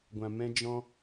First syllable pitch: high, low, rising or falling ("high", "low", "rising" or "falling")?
low